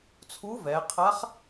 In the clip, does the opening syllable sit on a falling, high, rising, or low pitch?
rising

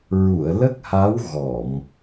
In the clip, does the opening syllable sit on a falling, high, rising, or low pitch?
low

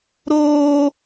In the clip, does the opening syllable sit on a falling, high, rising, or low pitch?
high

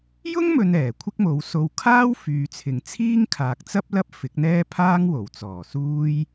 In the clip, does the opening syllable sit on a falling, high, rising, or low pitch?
high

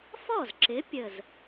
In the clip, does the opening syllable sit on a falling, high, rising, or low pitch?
falling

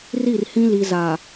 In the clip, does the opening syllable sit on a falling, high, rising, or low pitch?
falling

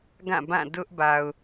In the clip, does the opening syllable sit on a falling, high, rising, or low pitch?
falling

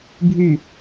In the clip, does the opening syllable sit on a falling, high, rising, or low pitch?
low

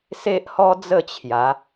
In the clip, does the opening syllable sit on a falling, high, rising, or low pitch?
high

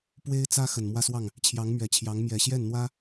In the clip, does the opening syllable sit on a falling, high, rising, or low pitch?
high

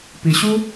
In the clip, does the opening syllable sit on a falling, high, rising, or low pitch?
low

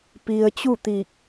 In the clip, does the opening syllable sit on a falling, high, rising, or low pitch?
low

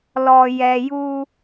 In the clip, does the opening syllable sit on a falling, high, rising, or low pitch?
low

